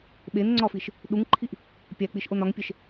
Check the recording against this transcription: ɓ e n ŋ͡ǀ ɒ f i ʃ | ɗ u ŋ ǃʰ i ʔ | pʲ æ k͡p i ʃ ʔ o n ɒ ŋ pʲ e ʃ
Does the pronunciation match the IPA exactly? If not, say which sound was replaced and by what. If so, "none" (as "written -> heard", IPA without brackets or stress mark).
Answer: none